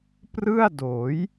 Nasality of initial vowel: oral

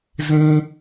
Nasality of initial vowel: nasal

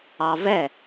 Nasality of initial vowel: oral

